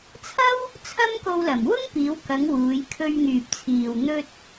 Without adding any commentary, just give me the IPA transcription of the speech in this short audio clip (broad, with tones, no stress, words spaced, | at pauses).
t͡sʰɐ˥w | t͡sʰɐ˥mko˧wlɐ˨˩m wʊ˥ŋpiː˨˧wkɐ˨˧ŋ wuː˨˧jkʰɵ˧ɥŋyː˨p̚t͡sʰiː˨w n̪ɵ˧t̚